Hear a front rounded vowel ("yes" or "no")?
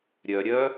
yes